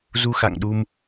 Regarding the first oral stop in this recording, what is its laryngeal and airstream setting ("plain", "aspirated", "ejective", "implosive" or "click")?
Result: implosive